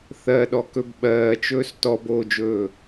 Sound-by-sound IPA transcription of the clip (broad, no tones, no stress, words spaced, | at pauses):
θɜɗɔkɵb ɓɜːt͡ʃɵːs tɔboːd͡ʒɵː